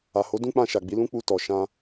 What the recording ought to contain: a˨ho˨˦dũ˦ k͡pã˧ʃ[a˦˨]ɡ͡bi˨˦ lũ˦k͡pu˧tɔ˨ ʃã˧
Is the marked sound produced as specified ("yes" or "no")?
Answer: no